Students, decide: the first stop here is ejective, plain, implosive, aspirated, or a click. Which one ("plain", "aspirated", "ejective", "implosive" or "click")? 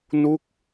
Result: plain